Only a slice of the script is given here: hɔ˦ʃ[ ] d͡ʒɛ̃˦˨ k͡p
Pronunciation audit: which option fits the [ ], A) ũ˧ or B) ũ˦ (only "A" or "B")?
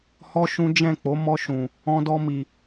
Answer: B